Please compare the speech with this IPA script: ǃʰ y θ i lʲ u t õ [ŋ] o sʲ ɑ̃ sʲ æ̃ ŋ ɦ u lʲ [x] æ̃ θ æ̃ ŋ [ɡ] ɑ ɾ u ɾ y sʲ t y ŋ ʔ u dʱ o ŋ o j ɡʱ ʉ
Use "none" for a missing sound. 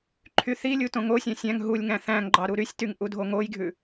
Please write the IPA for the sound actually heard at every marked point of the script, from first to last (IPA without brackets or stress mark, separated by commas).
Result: ŋ, ŋ, ɡ͡ǃ